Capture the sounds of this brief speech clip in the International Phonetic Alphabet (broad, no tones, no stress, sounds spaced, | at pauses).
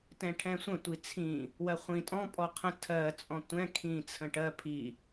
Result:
t ɛ̃ ʈʰ ɛ̃ sʷ ə̃ tʷ i t͡sʰ ĩ | w ɜ χʷ ĩ tʼ ɔ̃ pʼ ɔ qʰ ə̃ tʰ ɜ t͡sʼ ɔ̃ tʷ ɛ̃ kʰ ĩ t͡sʰ ə̃ ʈ ɜ pʰ i